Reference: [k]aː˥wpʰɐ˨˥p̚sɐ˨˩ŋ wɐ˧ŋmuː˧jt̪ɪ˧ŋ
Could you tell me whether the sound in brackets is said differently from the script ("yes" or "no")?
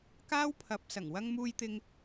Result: no